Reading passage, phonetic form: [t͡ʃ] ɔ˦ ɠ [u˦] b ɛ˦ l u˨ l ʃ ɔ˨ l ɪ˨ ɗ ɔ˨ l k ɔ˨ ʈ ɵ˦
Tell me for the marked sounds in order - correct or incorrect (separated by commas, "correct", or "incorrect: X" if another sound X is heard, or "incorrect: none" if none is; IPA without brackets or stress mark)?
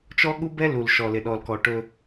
correct, correct